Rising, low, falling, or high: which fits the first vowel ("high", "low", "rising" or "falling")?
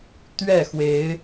falling